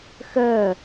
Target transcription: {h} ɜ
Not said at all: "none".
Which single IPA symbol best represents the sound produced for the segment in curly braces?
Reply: x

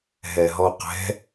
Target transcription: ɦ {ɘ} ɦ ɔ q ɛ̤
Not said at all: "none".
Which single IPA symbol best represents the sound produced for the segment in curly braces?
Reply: ɛ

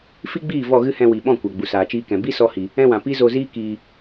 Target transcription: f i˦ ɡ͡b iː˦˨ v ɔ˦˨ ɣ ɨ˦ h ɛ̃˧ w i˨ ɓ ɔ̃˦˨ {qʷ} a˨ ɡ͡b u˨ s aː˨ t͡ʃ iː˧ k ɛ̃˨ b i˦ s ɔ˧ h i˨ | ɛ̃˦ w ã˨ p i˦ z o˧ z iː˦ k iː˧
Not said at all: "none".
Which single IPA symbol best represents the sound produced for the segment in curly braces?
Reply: kʷ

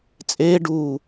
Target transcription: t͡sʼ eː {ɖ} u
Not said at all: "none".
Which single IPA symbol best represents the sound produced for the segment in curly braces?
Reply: ɖ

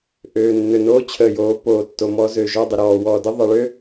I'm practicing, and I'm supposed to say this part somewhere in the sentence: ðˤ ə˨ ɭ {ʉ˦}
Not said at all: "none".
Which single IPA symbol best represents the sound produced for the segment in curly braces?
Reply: ø˦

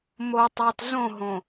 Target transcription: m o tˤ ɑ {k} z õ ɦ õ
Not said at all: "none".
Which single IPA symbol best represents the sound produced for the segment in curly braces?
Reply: t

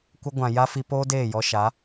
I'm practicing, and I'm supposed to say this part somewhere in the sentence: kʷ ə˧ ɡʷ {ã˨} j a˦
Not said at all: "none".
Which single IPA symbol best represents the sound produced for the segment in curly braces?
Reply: ã˨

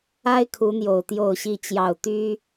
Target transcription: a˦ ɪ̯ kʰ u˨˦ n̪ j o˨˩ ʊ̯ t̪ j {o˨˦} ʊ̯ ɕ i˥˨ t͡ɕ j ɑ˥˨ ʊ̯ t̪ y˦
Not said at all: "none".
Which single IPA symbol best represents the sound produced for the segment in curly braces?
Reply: o˥˨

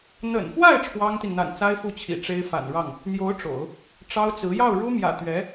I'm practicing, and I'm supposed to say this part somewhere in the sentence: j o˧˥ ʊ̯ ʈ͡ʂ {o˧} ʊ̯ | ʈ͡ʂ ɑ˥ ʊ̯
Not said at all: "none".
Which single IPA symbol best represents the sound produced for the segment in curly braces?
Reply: o̰˨˩˦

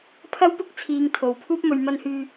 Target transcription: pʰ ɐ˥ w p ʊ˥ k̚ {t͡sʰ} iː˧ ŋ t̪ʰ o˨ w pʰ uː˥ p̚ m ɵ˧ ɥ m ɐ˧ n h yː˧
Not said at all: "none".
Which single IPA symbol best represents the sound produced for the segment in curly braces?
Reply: t͡sʰ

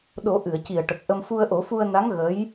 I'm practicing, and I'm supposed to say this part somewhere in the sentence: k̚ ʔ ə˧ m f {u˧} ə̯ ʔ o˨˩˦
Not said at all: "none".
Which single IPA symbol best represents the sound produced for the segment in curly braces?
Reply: u˧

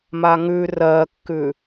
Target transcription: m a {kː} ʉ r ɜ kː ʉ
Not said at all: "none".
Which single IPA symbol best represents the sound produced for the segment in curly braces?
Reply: ŋ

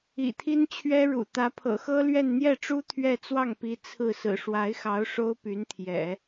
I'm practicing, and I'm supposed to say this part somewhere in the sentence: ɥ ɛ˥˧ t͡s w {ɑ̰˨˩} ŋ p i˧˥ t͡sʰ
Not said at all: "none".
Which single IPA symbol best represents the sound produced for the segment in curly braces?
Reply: ɑ˥˩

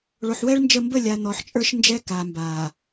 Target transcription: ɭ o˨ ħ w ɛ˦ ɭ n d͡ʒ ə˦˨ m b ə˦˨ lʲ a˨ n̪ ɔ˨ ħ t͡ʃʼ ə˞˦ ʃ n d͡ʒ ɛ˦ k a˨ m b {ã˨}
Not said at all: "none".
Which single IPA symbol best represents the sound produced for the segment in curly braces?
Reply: a˨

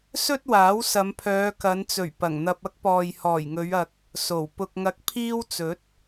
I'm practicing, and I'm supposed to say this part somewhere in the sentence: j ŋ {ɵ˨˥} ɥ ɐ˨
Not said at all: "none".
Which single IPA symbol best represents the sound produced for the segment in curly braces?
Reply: ɵ˨˧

